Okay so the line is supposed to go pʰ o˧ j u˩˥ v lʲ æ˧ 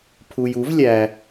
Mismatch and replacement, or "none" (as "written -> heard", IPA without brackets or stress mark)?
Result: o˧ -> u˧